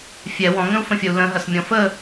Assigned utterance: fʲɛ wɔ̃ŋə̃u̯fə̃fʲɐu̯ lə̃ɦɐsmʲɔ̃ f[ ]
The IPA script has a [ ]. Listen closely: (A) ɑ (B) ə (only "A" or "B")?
B